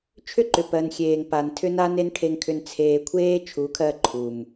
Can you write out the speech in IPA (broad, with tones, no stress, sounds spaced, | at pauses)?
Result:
t͡ʃʰ ʏ˦ ǃ ʏ˨ p ɜ˨ n xʲ eː˨ ŋ p a˨ n tʰ ʏ˧ n a˦ n e˦ n ʈʰ e˧ ŋ kʰ ʏ˧ n t͡sʰ eː˨ kʷʰ eː˦ t͡ʃʰ u˨˦ kʰ ɜ˧ ǃʰ u˨ m